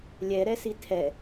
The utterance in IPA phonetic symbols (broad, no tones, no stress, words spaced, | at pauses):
lʲɛɾɛsi tʰɛ